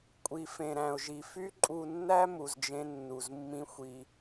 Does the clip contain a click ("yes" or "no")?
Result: yes